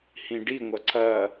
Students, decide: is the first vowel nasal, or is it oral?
nasal